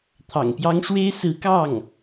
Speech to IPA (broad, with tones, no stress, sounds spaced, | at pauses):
t̪ʰ ɑ̰˨˩ ŋ p j ɑ˥ ŋ ʂ w e˥ ɪ̯ s ɹ̩˧˥ k ɑ˥˩ ŋ